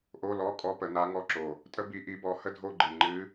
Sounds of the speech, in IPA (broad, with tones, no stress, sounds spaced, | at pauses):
ʔ o˧˥˧ l ɔ˧˥˧ kʼ ɔ˧˥ p ə˩˧ n a˧˥ ŋ ɔ˧˥˧ ǁ o˨˩ | tʼ ə˥ b i˧˥ ʔ i˧˥ b ɔ˧˥ h ə˥ dʱ o˥˧ ɡ͡ǃ ɨ˨˩ ŋ͡ǃ ɨ˧˥